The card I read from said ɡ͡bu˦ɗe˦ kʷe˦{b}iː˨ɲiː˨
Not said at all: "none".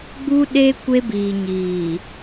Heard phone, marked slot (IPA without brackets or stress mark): b